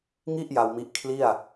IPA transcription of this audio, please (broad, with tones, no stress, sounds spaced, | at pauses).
ŋ i˥˩ ʔ j a˧ w m i˦˥ ʔ kʰ l i˥˩ a̯